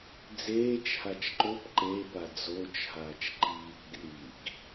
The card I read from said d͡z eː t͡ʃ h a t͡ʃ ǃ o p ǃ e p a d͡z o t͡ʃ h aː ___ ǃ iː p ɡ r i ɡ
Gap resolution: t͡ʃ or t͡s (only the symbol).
t͡ʃ